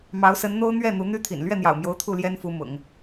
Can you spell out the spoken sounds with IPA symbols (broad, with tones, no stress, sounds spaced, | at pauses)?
m ɑ˧˥ ʊ̯ s ə˧˥ n n̪ o˥ ʊ̯ n̪ ɥ ɛ˥˩ n̪ u˧˥ n̪ y˥ t̪ʰ ḭ˨˩ n l ɥ ɛ˥˩ n̪ j ɑ̰˨˩ ʊ̯ m j o˧˥ ʊ̯ t̪ʰ u˥˩ l j ɛ˥ n f u˧˥ m ʊ̰˨˩˦ ŋ